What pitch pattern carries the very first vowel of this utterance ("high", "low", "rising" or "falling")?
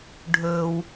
low